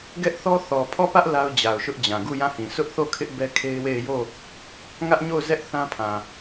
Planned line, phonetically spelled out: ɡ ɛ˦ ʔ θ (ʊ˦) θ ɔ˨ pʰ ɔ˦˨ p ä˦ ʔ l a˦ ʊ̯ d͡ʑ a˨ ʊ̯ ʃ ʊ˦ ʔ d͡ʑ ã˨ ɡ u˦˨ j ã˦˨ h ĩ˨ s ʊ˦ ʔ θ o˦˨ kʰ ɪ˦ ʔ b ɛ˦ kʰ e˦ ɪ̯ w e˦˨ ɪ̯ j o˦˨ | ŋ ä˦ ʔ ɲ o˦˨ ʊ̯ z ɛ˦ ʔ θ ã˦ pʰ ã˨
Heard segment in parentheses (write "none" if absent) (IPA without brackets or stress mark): ɔ˦